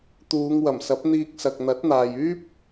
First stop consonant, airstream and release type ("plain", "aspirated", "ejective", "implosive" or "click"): plain